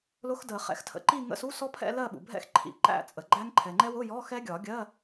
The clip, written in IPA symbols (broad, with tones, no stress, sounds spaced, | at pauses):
l ʊ˦˥ x d ə˨˩˦ χ ɛ̰˨˥ x tʰ ə̰˨˩˦ ǃ i˥˧ ŋ ə̰˧˥˧ s u˧˥˧ s ɔ˦˥ pʰ ɛ̰˥˧ l ɜ˥˧ ɓ ṵ˩ bʱ ɛ̰˥˧ x ǃʰ ḭ˨˩˦ ǃ æ̰˥˧ t͡sʼ ə˩ ɡ͡ǃ æ˦˥ ŋ ǃʰ ɛ˩ ŋ͡ǃ ɛ˦˥ w ʊ˧˥˧ j ɔ˧˥˧ x ɛ˦˥ ɡʲ ɒ˨˩˦ ɡʲ ɜ˧˥˧